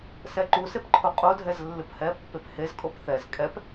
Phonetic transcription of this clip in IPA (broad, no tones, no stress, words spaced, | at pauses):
sɛǃusep ǃʰoqʼodʱɛz lːɨphɛpːep hezkʼop θɛz kʼɛp